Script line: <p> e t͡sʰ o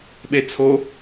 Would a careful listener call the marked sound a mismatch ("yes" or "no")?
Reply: yes